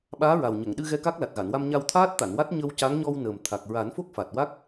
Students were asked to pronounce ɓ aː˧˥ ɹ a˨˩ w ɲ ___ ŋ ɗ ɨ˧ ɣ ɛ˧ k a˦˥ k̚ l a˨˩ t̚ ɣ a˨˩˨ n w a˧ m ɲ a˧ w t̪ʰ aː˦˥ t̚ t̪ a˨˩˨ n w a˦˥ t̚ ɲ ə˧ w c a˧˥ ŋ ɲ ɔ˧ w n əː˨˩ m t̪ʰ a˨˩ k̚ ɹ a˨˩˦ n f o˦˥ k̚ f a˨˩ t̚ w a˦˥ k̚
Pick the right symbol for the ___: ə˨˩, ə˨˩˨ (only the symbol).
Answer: ə˨˩˨